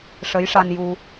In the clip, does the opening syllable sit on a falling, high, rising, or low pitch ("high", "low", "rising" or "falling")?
rising